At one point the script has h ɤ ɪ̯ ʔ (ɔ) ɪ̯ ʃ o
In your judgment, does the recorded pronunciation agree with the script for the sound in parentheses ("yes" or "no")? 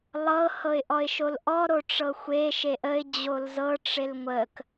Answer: yes